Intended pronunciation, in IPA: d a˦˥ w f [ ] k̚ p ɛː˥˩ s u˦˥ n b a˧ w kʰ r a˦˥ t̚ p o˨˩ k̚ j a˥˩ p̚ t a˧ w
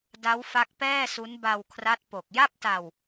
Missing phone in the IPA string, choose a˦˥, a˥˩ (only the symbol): a˦˥